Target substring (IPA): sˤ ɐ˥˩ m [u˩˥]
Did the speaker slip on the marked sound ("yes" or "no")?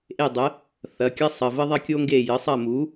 no